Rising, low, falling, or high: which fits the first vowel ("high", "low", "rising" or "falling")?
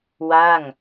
falling